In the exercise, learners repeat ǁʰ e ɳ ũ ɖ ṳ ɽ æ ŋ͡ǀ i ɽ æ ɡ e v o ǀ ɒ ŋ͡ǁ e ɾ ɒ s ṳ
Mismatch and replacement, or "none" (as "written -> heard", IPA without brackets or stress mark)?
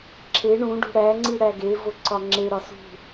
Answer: none